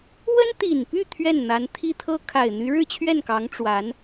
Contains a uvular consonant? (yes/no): no